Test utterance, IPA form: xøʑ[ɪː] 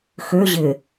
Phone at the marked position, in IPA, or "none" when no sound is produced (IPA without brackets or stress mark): ɪː